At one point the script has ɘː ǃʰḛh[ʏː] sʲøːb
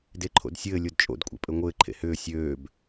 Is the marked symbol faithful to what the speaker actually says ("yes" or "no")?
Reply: yes